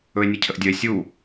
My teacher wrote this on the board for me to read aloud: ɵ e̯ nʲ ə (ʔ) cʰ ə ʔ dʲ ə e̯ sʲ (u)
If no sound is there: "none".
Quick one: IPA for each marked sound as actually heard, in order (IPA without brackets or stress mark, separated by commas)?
none, u